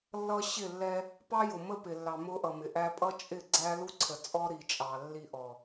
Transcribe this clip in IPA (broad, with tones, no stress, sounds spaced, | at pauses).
lː ʌ˦ ɕ ɪ˦˨ lː ɛ˦ | p ɑ˦ j ʊ˨ m ə˦ p ɪ˨ lː ɑ˨ m ʊ˦ ʔ ʌ˨ m ɪ˨ ʔ æ˦ pʼ ʌ˦ t͡ʃʼ ɪ˦˨ ɡ͡ǀ æ˦ l u˦ ǀʰ ə˨ t͡sʼ ɔ˦ ɾ i˨ t͡ʃʼ ɑ˨ lː i˦ ʔ ɔ˨